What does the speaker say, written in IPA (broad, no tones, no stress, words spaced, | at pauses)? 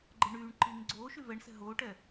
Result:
ɡ͡ǃɛɳyːɳǃiːŋ ɡ͡ǀoːʃy vɛɳsɛ̤ ɦoːʈɛ